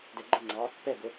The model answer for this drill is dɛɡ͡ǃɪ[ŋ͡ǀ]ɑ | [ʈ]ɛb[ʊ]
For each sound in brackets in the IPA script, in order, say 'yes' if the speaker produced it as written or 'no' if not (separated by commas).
yes, no, yes